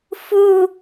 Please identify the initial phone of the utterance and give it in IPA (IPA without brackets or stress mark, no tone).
f